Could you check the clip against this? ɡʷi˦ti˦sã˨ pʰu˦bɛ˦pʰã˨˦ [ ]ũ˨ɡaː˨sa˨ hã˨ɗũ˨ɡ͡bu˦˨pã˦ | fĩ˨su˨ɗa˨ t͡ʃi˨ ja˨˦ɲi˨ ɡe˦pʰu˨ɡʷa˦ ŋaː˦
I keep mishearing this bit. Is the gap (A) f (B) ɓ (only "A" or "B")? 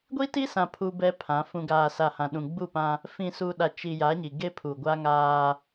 A